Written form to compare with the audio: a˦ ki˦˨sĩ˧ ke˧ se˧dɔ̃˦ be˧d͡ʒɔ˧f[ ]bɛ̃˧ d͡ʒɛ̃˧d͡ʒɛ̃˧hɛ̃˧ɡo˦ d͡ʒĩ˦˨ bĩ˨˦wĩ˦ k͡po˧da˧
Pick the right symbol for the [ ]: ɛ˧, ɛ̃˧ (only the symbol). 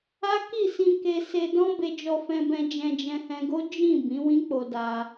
ɛ̃˧